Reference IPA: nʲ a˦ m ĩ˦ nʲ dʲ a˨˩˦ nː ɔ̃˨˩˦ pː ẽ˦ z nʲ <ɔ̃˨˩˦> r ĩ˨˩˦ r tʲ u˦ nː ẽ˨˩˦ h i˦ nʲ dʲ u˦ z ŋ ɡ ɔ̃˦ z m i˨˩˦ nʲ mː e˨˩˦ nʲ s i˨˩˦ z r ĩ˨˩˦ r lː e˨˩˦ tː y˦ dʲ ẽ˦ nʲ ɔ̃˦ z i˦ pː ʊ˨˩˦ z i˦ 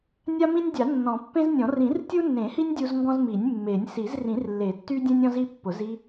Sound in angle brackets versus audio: correct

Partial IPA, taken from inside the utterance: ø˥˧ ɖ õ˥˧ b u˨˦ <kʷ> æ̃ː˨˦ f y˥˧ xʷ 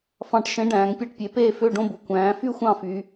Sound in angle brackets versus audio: correct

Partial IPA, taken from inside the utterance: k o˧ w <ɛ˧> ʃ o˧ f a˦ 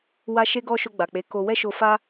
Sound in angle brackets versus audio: incorrect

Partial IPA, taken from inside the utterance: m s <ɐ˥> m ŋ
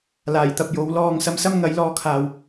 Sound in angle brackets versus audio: correct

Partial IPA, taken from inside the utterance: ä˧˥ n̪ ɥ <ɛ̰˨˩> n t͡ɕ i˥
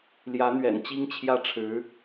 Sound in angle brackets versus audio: correct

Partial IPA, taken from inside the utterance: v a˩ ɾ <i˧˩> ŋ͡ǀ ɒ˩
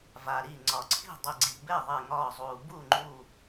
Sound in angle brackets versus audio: correct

